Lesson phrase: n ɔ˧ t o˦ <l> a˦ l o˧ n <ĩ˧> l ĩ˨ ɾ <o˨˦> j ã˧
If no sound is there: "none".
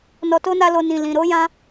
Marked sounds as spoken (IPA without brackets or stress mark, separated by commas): n, ĩ˨, o˨˦